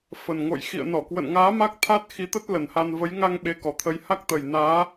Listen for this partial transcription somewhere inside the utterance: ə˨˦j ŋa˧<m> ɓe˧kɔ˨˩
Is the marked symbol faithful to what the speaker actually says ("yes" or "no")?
no